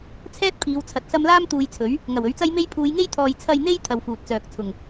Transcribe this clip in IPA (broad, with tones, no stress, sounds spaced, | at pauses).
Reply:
t͡sʰ ɛː˥ t̚ pʰ iː˨˧ w t͡sʰ ɐ˨˥ t̚ s ɐ˧ m l aː˥ m t̪ uː˧ j t͡sʰ ɵ˨˥ ɥ | ŋ ɐ˨˩ w ɵ˨˥ ɥ t͡s ɐ˥ j m e˥ j pʰ uː˨˧ j ŋ e˥ j t̪ʰ ɔː˨ j t͡sʰ ɐ˨ j n̪ e˧ j t̪ʰ ɐ˧ w f uː˨ t̚ t͡s œː˨ k̚ t͡sʰ ʊ˨˩ ŋ